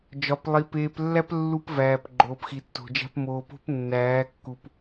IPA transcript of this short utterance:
d͡ʒɒ˨plˠi˨ peː˨plːæ˦p lːu˦pvæː˨p ɡ͡ǃoː˨pxi˨tːo̤˨d͡ʒæ̤˦p moː˨po̤˦p nːæː˨˦kːu˨p

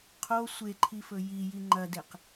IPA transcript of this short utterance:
qʰo sʷeǃʰifɵ jiji ŋ͡ǃɐdeq

